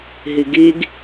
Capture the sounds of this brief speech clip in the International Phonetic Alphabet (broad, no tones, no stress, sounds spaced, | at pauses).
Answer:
ɦ i ɡ i ɡ